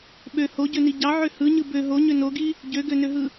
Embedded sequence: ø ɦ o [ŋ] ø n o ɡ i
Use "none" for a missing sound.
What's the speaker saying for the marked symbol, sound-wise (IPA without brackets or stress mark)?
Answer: ɲ